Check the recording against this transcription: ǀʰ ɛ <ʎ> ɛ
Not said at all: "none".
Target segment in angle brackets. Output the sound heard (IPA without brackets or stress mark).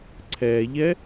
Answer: ʎ